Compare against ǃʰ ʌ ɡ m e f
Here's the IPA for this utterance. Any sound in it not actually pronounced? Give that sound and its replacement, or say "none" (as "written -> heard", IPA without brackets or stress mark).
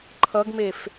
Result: none